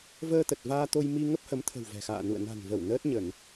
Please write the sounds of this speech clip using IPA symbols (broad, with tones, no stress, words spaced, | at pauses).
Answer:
vəː˧t̪ə˨˩t̚ vaː˧t̪o˧j mi˧ ŋə˦˥p̚hə˨˦mt̪ʰə̤˨˩w vɛ̤˨˩xa̰ː˧˨ nṵ˧˨ə̯ na̤˨˩nvə˧˩w nəː˦˥t̚ɲə˧˩˨n